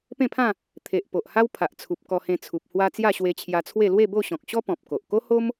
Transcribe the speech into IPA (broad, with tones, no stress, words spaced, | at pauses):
pẽ˥˧pʰã˥˧ | t̪ʰe˨ʔ po˨ʔha˦w pʰa˨ʔt͡sʰu˨p̚ kɔ˧hẽ˧t͡sʰu˨p̚ hwa˧ t͡sja˥˧ɕwe˧t͡ɕʰja˧t͡sʰwe˥˧ lwe˥˧bo˥˧ɕɔ̃˨k̚ɕɔ˦ pɔ̃˨p̚ko˨ʔ ko˦ho˦m